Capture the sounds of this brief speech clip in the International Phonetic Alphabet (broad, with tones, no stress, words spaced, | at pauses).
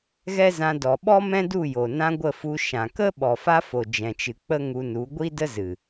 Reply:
ɣɛ˦zã˧ dɔ˨ ɓɔ˦mɛ̃˦du˦˨jo˨ nã˧ ɡʷə˦˨fu˧ ʃã˨kə˦ ɓɔ˨fa˧ fo˨d͡ʒɛ̃˨t͡ʃɨ˨k͡pə˦ ŋu˧nu˨˦ ɡʷi˦ də˦ zɨ˨